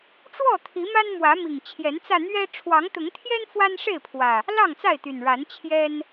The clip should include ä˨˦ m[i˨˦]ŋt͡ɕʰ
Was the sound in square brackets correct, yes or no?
no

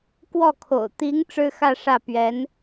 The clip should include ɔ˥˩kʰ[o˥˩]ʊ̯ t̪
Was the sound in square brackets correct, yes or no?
no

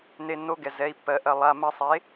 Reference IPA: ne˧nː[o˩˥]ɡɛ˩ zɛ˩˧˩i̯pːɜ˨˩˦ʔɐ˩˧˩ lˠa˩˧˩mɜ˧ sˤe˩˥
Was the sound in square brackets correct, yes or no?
no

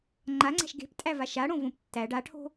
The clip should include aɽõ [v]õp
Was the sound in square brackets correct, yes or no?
yes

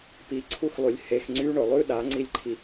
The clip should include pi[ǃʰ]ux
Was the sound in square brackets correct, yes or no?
no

